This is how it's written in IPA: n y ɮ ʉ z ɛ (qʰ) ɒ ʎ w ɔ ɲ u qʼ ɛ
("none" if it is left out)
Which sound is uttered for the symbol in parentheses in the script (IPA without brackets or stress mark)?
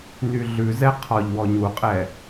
qʰ